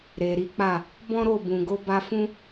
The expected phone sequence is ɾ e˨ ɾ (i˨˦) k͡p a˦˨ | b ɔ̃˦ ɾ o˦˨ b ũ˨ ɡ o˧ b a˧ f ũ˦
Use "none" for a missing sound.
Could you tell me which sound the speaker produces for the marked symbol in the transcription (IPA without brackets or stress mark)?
i˨˦